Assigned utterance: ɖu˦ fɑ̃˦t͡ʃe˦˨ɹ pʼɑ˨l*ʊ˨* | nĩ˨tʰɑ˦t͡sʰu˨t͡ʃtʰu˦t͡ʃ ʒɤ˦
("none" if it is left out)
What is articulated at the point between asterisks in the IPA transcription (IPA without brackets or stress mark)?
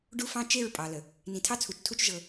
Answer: ə˨